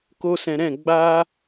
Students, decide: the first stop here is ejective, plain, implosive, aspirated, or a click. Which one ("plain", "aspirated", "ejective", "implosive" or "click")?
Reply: plain